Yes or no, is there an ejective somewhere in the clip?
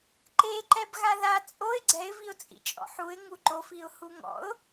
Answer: yes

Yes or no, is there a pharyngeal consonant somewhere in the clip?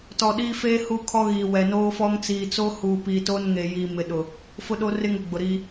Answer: no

